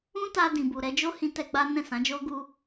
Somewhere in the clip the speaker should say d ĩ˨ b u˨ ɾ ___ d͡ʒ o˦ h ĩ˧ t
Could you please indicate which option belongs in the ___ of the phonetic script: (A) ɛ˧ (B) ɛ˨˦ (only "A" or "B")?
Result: B